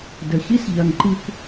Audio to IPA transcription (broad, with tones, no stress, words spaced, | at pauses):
də˨çi˦sʎɐ˨ŋ ǃi˨kʷ